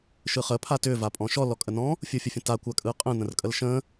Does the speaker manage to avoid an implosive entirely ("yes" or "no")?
yes